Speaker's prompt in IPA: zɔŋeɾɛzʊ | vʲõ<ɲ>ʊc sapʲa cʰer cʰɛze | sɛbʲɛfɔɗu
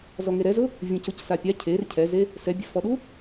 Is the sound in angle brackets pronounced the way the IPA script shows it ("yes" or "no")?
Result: no